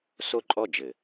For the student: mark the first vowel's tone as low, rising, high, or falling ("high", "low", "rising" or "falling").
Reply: falling